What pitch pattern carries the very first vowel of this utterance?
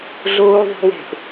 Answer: high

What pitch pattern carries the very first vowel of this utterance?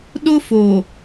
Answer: high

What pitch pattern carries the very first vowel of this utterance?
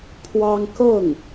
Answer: high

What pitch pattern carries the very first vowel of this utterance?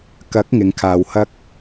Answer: rising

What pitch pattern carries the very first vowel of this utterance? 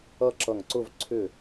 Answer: falling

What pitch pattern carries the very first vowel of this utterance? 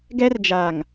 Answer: high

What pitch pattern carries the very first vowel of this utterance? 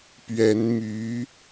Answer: rising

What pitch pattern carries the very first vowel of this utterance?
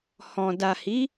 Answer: low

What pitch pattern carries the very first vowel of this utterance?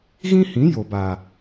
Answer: high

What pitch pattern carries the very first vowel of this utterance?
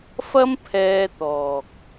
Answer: high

